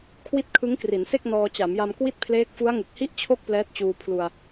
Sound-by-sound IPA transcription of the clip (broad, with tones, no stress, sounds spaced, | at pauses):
kʰ w i˦˥ t̚ kʰ ɯ˦˥ ŋ k r i˩˦ n s e˥˩ k̚ n ɔː˧ t͡ɕ a˩˦ m j a˧ m k w i˥˩ t̚ pʰ l eː˦˥ k̚ f u˦˥ a̯ ŋ ɯ˨˩ k̚ h i˥˩ ʔ t͡ɕʰ o˥˩ k̚ p l ɛː˦˥ t̚ t͡ɕ uː˧ pʰ l u˧ a̯